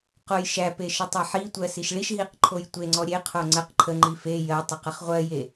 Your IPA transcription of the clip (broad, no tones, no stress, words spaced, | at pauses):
qojʃæpe ʃətˤeħitʷɜ siʃɭiʃɦiq ǃʰojtʷeŋ͡ǀɔ ɾʲeqʰo ŋ͡ǀəq ǃʰəŋ͡ǃi fe jɜ tˤəqəχʁʷɜje